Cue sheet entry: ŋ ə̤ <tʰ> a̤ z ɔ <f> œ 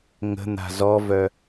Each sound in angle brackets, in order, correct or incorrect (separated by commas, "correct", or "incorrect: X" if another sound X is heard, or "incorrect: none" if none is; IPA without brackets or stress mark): incorrect: n̪, incorrect: v